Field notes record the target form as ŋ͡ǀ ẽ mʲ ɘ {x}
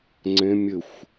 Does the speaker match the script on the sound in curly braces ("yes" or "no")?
no